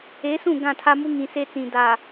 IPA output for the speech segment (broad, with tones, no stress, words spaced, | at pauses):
e˨˦sũ˦˨ ɡã˦˨tʰa˦mu˦ ŋĩ˨se˦t͡sĩ˨ da˨